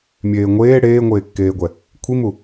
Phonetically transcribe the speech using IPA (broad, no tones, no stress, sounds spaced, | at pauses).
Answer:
mʲ eː ŋʷ eː ɽ eː ŋʷ eː kː eː ɡʷ ɛ | kʷʰ i m u